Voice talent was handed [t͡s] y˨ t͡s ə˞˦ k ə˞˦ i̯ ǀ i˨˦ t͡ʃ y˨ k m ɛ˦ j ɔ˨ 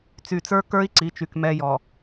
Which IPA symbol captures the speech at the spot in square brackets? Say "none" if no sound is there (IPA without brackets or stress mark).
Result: t͡s